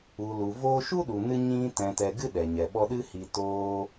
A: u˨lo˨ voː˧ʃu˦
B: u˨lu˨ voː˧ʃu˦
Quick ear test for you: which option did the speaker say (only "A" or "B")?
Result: B